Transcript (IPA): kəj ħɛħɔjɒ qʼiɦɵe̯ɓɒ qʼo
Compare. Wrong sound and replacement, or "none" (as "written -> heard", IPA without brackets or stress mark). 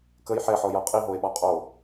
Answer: ɵ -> o